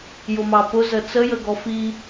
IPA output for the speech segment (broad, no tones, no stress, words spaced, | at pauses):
jʊmɑpʊzə t͡səjə ɡɔfi